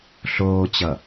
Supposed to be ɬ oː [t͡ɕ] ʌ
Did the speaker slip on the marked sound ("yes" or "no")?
no